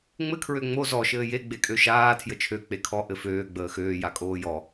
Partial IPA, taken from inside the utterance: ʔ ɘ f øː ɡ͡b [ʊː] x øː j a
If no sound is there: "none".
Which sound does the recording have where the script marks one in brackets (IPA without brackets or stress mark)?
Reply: əː